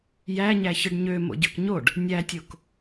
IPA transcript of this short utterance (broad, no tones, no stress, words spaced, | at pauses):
jæ ɲæçɯɖɲø mo̰ɟøkɲoɖ | nʲætʲok